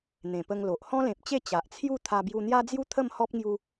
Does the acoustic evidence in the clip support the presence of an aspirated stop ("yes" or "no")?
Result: yes